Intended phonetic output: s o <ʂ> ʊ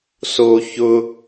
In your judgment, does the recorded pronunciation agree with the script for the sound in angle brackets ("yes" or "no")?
no